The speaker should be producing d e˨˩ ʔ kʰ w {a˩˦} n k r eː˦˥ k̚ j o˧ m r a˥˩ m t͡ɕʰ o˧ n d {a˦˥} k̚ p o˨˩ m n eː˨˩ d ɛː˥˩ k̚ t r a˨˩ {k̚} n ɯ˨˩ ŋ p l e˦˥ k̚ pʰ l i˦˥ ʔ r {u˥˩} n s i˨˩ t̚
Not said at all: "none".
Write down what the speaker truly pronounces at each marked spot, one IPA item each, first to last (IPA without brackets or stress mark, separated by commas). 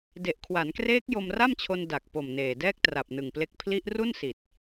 a˩˦, a˨˩, p̚, u˥˩